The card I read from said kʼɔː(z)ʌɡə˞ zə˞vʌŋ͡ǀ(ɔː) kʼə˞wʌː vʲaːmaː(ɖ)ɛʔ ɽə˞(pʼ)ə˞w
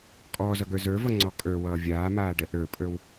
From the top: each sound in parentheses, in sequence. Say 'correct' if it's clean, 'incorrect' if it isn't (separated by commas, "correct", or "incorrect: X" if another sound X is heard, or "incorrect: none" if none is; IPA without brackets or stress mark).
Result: correct, incorrect: ɔ, correct, correct